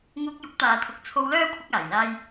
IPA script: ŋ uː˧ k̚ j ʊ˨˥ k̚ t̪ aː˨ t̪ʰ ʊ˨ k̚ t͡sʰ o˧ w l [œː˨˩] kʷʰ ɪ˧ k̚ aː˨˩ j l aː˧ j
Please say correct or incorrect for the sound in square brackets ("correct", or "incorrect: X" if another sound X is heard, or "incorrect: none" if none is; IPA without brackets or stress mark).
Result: incorrect: œː˥